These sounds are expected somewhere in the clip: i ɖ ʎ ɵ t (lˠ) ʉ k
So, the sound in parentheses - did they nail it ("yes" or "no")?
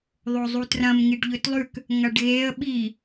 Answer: yes